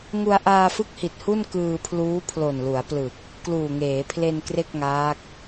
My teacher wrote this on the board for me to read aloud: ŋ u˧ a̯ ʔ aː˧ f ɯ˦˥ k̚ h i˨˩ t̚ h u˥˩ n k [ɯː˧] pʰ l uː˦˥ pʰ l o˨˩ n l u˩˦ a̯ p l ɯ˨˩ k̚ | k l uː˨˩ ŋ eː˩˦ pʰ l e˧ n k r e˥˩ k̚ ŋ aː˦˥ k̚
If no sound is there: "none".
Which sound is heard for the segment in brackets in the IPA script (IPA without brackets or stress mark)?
ɯː˧